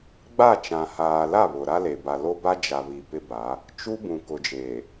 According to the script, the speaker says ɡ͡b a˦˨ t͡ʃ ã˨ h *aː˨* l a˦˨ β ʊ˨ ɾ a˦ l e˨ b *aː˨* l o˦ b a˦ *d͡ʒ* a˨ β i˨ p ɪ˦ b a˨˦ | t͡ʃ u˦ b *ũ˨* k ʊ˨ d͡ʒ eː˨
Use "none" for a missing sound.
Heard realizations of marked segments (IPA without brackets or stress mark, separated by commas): aː˨, a˨, d͡ʒ, ũ˨